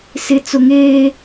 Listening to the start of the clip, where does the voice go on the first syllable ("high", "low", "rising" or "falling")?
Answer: low